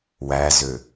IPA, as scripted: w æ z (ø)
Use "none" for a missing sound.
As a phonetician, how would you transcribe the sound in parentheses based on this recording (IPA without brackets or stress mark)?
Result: ø